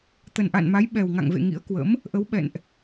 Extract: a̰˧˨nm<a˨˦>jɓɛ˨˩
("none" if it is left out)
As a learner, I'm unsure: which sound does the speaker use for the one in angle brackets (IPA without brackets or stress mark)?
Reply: a˨˦